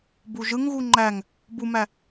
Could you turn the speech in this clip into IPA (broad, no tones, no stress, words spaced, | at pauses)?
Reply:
buʒɯŋɣu ŋ͡ǃæŋ | bumæ